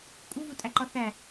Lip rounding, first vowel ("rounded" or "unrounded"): rounded